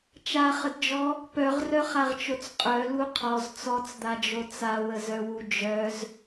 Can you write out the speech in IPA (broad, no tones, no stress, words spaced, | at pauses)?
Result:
t͡ʃaχədd͡ʒɔ | pœʁrœχaʁt͡ʃot͡s qʼœlu qʰɔz t͡sɔt͡sd̪ad͡ʒo t͡sawəzœwu d͡ʒœz